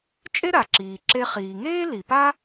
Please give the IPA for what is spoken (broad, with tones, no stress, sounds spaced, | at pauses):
t͡ʃʼ e˥ ɾ a˩ ǁ iː˩ ǁ e˧ χ iː˩ ŋ eː˥ l i˩ p a˥